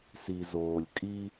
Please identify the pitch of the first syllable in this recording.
low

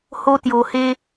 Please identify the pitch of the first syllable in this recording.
high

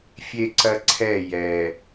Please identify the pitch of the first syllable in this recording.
high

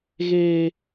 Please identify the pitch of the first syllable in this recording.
high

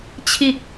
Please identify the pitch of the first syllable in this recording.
falling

